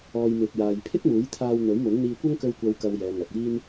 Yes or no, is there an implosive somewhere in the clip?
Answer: no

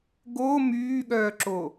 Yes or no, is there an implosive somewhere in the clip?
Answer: yes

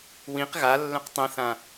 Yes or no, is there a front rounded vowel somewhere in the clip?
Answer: yes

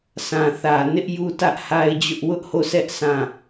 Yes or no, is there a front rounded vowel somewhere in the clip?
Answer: no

